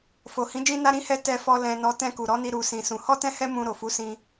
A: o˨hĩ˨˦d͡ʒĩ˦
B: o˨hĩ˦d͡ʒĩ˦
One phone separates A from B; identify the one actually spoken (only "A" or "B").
A